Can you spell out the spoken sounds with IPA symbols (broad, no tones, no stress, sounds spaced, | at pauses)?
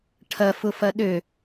ʈʰ ɐ f ʊ f ɐ ɗ ø